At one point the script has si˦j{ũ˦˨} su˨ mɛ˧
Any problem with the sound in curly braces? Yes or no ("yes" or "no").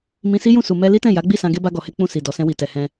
no